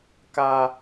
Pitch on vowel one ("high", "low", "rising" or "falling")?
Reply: high